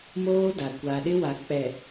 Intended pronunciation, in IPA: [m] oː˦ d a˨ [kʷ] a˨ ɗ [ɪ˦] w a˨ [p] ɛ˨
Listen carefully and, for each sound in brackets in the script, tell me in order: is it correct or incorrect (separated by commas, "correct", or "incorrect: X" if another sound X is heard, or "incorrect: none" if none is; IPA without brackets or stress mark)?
correct, correct, correct, incorrect: k͡p